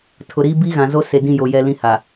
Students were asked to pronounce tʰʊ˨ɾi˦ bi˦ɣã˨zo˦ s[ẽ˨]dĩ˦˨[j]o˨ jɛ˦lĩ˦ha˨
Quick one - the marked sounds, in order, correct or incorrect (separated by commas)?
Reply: incorrect, correct